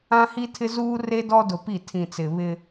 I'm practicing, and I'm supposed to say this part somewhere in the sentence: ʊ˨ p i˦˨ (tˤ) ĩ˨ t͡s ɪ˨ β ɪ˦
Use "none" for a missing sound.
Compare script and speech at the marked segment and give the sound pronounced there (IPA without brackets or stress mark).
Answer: tʰ